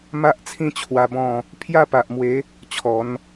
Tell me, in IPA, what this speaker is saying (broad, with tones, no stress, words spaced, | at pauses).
ma˦ʔt͡sʰĩ˥˧t͡ɕʰwa˧ bɔ̃˥˧ | pʰja˥˧pa˨ʔmwe˨˦ | t͡ɕʰɔ˨˦n